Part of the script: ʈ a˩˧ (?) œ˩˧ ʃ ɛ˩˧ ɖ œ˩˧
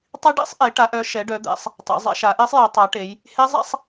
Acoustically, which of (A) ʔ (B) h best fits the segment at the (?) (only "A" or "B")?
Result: A